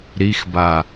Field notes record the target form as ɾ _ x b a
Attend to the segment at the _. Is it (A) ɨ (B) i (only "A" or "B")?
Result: B